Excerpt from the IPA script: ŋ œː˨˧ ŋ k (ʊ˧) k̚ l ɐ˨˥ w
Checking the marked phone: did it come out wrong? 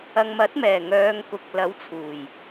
yes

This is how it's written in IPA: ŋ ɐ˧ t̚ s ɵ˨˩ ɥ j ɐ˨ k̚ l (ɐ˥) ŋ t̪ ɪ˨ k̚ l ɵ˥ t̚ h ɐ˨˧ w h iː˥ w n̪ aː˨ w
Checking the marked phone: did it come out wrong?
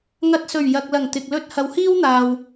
yes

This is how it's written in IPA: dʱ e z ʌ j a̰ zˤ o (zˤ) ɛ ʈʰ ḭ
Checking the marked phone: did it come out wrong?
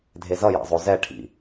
yes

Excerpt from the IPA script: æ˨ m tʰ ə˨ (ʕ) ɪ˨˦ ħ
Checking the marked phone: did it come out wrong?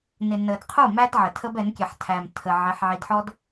no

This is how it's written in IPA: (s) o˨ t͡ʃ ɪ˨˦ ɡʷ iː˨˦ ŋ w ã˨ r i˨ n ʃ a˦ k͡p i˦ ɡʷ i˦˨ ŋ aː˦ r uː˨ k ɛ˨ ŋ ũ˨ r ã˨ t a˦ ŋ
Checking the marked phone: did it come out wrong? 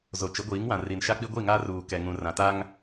yes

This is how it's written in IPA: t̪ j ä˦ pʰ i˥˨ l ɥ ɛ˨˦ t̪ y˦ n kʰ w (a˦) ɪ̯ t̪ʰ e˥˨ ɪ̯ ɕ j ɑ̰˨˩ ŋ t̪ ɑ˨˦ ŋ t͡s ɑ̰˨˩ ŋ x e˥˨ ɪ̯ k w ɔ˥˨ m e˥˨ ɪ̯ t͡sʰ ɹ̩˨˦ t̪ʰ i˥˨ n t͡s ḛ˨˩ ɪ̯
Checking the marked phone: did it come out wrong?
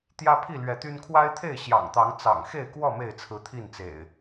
no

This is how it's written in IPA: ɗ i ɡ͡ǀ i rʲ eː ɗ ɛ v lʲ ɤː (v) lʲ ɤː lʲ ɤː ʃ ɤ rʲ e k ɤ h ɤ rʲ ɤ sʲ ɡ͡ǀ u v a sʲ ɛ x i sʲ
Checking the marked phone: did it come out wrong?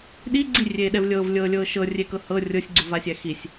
no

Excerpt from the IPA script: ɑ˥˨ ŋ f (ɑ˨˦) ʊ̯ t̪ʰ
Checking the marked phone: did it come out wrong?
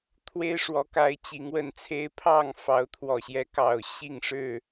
no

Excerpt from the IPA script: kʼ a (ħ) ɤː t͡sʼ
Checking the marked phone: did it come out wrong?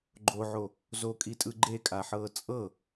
no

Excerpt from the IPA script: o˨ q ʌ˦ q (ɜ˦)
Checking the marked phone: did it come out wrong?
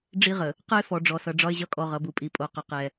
yes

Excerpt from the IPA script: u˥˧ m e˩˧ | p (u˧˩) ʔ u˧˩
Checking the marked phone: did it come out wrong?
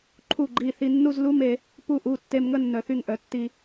no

